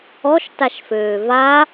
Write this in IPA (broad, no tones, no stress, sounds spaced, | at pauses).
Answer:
ɔ ʃ t a ʃ f øː v a